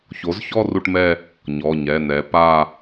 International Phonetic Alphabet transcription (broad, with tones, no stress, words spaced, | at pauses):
ço˩˥zçɔ˥˧ ru˥˧ʈmɛ˥˧ | ɲɔ˩˧˩ɲɛ˩˧˩ nɛ˩˥ pa˥˧